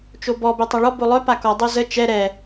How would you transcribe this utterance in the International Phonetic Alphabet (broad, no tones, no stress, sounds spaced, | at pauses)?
t͡ʃ o b ɔ b ɛ tˤ a ɭ ɔ b o lˠ œ p a k ɔ dˤ o z ə t͡ʃ ɛ ɾ ɛ